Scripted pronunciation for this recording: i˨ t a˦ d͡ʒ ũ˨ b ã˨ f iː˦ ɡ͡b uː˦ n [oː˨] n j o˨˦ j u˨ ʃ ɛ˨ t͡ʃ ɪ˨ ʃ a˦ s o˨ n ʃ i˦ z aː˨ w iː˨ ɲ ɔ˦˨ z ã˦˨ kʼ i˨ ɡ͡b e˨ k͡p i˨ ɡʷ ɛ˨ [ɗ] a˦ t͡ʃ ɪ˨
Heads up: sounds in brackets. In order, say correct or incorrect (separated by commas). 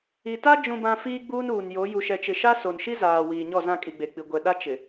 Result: incorrect, correct